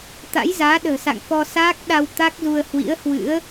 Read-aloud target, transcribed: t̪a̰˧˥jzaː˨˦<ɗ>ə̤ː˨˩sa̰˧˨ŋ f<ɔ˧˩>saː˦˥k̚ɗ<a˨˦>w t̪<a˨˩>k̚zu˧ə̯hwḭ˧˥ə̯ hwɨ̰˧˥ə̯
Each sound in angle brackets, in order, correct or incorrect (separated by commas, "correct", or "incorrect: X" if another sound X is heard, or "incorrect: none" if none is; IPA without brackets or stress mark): correct, incorrect: ɔ˧, incorrect: a˧, incorrect: a˦˥